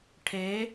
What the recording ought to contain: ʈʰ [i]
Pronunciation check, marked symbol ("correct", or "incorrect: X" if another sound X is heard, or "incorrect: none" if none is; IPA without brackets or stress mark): incorrect: e